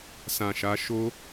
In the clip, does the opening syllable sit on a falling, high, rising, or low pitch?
low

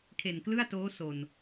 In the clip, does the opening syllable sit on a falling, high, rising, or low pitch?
low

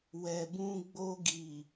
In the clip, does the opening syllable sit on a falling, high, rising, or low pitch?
low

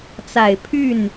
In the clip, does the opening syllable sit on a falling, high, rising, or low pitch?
low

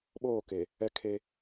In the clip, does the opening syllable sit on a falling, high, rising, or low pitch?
falling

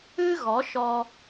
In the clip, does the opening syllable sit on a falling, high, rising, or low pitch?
high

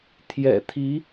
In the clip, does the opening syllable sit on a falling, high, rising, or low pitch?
low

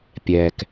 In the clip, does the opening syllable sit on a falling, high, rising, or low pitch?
low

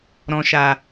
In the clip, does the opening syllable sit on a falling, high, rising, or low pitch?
low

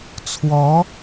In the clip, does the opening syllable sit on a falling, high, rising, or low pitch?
rising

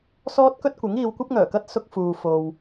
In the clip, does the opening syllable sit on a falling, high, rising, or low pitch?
high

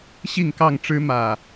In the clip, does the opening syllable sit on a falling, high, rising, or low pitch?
falling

